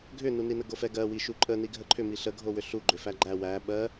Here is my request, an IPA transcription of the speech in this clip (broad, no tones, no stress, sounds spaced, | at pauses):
ɡʱ ʏ n u n i n ə ɡ o f ɛ ɡ ɜ w i ʃ u ǃʼ ə n i ɡʱ ə ǃʰ ʏ m i ɬ ə ɡʱ o w ʏ ɬ u ɡ͡ǃ ʏ f æ ɡ͡ǃ æ w æ ɓ ɜ